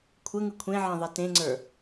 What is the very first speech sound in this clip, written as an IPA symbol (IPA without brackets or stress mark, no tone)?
kʷʰ